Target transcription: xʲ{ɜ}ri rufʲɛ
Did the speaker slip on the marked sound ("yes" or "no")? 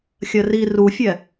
no